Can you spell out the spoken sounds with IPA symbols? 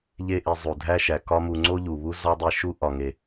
ʎ e˧ ʔ i˨ zˤ u˨ dʱ æ˦ ʃ æ˨ k ɒ˦ m u˧ ŋ͡ǀ o˦ ʎ u˨ β u˦ z ɒ˦ dˤ i˧ ʃ u˦ ʔ ɒ˨ ŋ e˨

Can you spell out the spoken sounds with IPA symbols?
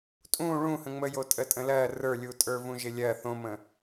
tʼ ũ ɭ ũ h ə̃ ŋ͡m ə j o tʼ ə tʼ ə̃ l ɜ r ə˞ lʲ u tʼ ə˞ v ũ ʒ ɪ lʲ ɜ θ õ m ə̃

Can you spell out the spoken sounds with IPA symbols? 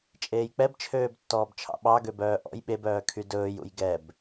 t͡ʃʼ eː j k͡p ɛ b t͡ʃʰ øː b tː ɔː b t͡ʃʰ ɑ̰ ɓ ɑ ɡ ø b œː ʔ ɔ̰ j ɓ e b œː kʰ y d ɵː j ṵ j ɡ ɛ b

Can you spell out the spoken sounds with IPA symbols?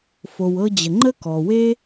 f o˨ w ɤ˦ d͡ʑ ə˨ ŋ͡ǃ ə˥ k ɔ˩ w e˥

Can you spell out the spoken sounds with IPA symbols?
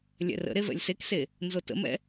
lʲ ɛ̰ r ə̰ ɾ e v ɛ̰ lʲ s e k s e | n z o t ə̰ m ɛ̰

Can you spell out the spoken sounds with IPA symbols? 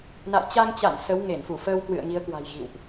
n a̰˧˨ j t͡ɕ a˧ ŋ t͡ɕ a̰˧˨ n s ə˨˦ w ŋ e˧˩ n f u˧˩ f əː˧ w k w ɨ̰˧˨ ə̯ ŋ i˨˦ ə̯ k w a̤˨˩ j ɣ ḭ˧˨ w ʔ

